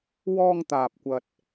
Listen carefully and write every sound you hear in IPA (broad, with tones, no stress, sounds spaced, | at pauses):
w ɔː˧ ŋ t̪ aː˨ p̚ kʷ ɐ˨ t̚